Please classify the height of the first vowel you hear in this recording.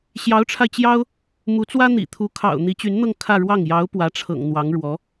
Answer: low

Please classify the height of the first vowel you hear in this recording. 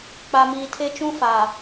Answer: low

